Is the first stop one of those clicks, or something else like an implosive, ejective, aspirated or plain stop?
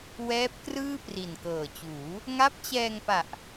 plain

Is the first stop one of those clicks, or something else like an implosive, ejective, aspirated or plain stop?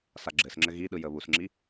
click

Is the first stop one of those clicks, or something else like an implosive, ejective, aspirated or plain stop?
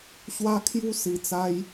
aspirated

